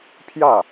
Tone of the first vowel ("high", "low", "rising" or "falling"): falling